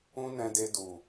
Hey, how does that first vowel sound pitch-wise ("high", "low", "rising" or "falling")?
high